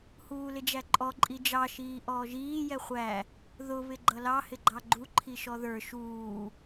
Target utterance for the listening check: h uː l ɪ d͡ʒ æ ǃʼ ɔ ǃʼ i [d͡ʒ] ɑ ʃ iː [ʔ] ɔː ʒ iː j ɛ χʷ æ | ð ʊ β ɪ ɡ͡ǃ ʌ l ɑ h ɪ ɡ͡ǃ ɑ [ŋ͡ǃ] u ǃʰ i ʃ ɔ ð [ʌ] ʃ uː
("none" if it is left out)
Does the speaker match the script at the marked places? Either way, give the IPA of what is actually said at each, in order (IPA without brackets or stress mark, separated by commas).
d͡ʒ, ʔ, ɡ͡ǃ, ə˞